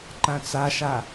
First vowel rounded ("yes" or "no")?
no